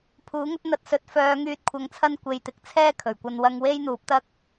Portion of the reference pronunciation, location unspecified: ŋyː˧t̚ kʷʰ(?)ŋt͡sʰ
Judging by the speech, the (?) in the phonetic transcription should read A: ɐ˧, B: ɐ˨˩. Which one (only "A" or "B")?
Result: A